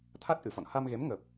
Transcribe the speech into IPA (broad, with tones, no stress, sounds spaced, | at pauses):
t̪ʰ a˦˥ t̚ ʔ ɨ˧˩ f ɔ̰˧˨ n h a˧ m ɣ e˨˦ m ŋ ə˨˩ p̚